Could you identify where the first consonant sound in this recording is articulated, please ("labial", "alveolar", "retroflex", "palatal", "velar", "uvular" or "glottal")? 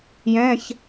palatal